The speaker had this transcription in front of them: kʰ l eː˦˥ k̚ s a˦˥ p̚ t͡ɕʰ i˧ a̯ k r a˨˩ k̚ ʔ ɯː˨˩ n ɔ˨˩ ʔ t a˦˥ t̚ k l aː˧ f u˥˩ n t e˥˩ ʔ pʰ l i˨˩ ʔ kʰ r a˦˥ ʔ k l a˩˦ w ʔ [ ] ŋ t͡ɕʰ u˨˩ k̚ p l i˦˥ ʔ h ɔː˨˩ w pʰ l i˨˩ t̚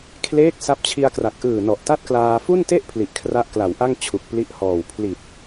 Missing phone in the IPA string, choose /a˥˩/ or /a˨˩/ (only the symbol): a˥˩